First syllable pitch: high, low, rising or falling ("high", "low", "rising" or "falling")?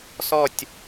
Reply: falling